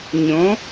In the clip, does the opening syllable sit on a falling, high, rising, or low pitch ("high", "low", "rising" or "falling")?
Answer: rising